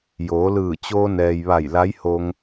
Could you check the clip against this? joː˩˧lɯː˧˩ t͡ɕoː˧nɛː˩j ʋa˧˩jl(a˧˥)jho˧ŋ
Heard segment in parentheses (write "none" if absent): a˧˥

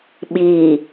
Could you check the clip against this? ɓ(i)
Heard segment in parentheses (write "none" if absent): i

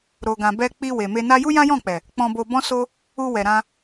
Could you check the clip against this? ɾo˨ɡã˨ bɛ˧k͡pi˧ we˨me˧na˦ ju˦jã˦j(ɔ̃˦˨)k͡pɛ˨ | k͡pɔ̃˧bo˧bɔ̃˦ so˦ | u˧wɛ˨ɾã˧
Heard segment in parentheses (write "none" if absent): ɔ̃˦˨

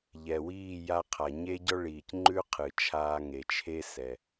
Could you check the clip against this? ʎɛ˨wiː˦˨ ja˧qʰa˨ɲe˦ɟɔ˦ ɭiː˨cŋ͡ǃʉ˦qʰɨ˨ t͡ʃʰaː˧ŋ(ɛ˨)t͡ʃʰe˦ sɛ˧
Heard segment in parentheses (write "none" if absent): e˨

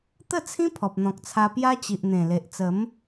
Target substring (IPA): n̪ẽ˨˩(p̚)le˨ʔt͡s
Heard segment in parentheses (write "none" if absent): none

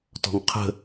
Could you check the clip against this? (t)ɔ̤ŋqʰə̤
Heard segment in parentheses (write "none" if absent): t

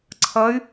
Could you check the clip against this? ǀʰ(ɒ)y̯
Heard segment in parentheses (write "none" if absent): ʌ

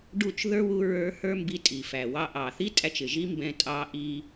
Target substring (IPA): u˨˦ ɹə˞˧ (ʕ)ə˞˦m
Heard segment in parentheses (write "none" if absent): h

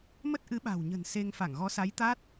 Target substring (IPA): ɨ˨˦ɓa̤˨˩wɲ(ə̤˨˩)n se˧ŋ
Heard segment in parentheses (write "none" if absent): ə̤˨˩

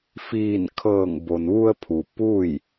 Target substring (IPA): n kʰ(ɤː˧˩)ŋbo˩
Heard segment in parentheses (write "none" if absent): ɤː˧˩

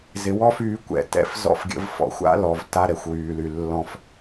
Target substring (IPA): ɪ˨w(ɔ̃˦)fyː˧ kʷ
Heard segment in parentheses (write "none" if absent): ɔ˦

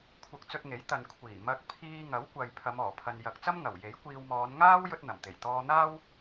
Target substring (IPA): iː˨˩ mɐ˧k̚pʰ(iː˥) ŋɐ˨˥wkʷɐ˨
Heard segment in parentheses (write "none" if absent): iː˧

